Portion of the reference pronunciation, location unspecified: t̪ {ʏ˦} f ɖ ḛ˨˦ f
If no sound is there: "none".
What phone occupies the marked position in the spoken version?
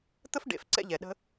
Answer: ə˦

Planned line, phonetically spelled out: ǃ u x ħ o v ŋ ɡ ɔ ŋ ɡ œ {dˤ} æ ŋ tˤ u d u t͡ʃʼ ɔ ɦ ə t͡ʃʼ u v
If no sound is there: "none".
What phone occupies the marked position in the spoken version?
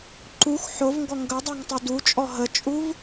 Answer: dˤ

